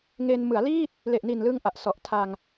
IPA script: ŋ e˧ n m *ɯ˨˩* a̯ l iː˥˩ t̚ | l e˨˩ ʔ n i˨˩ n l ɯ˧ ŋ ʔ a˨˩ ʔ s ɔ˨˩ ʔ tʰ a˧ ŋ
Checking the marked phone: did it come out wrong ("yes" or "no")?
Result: yes